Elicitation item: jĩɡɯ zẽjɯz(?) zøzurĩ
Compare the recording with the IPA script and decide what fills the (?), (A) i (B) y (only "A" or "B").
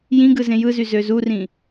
B